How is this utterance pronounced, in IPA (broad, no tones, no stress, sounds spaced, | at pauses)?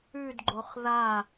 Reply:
ʉ d ɡ͡ǃ o χ ð a